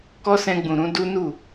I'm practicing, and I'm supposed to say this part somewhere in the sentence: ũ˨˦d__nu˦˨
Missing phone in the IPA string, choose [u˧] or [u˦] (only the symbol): u˦